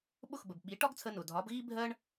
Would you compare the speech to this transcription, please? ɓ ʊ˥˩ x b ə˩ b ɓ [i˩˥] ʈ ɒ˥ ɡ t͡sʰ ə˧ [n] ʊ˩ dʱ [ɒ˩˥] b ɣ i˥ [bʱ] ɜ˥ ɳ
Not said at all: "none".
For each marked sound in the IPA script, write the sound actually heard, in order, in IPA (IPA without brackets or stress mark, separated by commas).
i˩˥, n, ɒ˩˥, bʱ